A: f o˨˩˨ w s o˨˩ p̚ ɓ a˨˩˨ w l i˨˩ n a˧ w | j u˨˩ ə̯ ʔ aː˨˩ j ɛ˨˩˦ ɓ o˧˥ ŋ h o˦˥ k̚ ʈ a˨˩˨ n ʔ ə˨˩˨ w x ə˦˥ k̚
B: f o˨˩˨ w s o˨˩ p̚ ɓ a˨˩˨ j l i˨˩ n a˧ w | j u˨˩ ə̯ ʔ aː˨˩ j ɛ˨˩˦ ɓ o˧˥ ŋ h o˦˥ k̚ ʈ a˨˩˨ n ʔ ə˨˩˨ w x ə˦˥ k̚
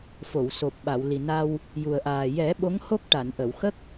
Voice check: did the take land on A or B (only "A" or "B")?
A